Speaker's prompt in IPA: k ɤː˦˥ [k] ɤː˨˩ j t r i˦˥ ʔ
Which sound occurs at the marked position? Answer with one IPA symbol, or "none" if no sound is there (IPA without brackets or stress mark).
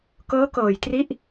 k